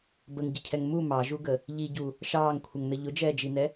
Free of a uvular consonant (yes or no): yes